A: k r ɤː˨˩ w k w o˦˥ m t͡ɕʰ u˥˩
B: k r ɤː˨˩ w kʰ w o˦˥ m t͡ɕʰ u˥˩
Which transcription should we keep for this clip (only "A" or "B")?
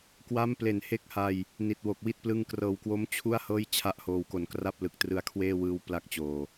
A